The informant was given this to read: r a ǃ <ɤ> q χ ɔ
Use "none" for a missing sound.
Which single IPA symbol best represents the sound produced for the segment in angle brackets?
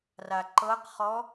ɤ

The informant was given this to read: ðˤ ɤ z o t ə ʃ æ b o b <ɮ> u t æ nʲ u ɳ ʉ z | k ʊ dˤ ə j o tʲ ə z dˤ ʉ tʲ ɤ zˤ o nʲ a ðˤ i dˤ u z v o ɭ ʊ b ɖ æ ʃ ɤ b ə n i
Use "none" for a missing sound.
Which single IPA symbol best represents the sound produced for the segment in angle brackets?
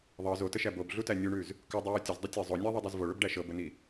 ɮ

